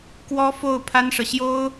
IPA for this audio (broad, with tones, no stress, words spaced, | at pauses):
kwɔ˥fo˥˩ʊ̯ pʰa˥nʂɤ˨ ɕjo˥ʊ̯